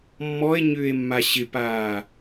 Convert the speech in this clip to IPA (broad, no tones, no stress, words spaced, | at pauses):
mːɔe̯ɲʏːe̯mːa ɕɪpaː